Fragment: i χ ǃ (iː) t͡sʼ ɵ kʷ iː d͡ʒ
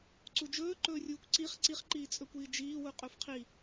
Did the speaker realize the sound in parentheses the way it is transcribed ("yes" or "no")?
yes